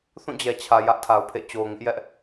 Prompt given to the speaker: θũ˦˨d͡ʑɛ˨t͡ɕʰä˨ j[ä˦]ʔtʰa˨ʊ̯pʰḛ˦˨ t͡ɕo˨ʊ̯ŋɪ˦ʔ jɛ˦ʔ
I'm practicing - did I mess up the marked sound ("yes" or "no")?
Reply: no